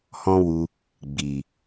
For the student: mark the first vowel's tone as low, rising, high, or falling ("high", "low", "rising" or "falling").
high